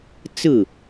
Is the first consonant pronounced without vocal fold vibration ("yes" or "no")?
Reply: yes